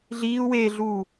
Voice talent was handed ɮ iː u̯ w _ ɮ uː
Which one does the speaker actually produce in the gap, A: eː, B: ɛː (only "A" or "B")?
A